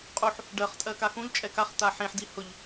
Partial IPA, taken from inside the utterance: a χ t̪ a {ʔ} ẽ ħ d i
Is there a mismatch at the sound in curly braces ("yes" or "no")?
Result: yes